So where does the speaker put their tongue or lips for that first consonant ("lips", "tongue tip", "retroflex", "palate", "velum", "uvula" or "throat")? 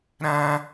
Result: tongue tip